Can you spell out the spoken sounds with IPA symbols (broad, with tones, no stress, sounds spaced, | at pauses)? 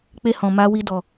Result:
k͡p e˧ h ɔ̃˨ m a˧ w i˧ d ɔ˨